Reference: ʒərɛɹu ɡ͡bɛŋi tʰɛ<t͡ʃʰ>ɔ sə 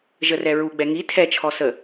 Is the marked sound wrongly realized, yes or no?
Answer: no